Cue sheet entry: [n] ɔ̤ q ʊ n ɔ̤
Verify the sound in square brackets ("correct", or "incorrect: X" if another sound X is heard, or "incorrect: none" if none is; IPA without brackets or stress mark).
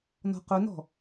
correct